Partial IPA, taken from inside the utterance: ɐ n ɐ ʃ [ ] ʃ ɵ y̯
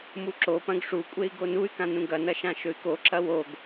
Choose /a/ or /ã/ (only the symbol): ã